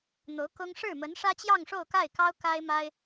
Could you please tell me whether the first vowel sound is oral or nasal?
oral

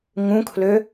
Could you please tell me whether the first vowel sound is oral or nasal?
nasal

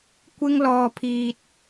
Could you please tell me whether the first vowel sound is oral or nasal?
oral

